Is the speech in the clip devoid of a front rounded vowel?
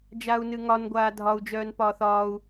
no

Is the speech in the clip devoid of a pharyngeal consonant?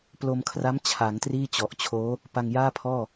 yes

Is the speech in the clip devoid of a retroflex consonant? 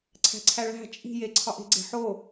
no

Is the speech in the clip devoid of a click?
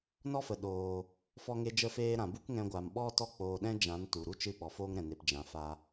yes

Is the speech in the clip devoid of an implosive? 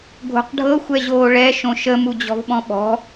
no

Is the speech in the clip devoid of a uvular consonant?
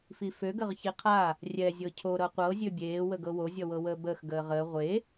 no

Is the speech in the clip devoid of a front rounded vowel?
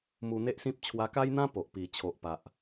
yes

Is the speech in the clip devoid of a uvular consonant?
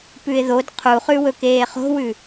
no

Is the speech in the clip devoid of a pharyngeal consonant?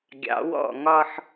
no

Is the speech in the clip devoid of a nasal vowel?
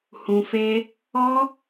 no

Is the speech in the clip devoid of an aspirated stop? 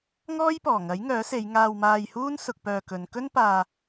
yes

